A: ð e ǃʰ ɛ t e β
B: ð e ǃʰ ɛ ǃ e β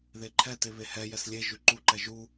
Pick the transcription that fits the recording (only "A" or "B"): A